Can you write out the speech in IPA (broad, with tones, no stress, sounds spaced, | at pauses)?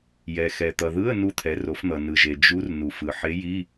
j ɛ˩ x ɛ˩ t̪ ʌ˩ ð ɯ˧˥˧ ə̯ n u˧˥ t̪ʰ ɛ˩˧ r o˩˧ f n̪ ʌ˩ n ɯ˩ ʒ e˩ d͡ʒ u˧˥ r n u˩ f ɯ˩ ħ e˧˥ j i˧˥˧